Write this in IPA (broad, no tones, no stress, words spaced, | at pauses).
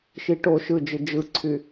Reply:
ʃiʈo ʃɯd͡ʒɯ d͡ʒɯǀʰy